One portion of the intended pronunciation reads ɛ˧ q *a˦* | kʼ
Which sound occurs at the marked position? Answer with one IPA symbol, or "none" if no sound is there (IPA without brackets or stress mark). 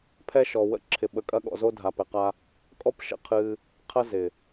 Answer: a˦